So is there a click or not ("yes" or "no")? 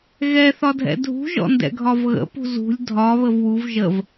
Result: no